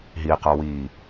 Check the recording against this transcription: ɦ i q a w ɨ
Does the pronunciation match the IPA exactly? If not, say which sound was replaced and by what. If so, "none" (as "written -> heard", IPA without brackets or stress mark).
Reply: ɨ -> i